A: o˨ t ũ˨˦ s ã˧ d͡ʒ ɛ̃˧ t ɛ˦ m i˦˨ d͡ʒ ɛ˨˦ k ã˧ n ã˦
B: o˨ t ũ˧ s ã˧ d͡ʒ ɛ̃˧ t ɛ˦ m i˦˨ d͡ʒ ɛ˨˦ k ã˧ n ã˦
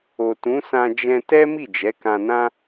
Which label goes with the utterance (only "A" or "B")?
A